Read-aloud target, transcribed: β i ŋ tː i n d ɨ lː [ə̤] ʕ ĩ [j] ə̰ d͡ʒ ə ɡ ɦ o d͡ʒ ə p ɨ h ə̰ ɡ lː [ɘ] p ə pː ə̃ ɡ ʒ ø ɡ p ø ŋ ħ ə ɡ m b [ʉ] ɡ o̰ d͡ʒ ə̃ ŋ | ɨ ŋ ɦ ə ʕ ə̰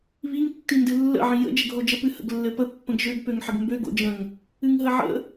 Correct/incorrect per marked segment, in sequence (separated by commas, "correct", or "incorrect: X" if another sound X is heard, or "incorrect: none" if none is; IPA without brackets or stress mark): incorrect: ə̰, correct, correct, incorrect: ø